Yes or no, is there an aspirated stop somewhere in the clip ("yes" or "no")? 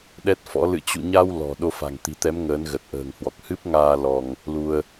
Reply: no